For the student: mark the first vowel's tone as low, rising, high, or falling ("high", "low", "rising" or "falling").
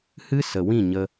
high